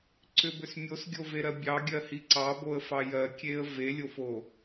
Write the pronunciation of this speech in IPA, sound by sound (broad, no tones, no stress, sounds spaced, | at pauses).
ǀ ʏ b ʏ s mʲ o s ɡʲ o v e ɾ ɜ bʲ ɑ ɡʲ ɜ h i ǀ ɑ b o ə̯ f ɑ j ɜ kʲ e ə̯ v e lʲ o f o